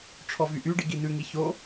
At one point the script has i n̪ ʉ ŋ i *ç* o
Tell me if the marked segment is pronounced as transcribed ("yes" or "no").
yes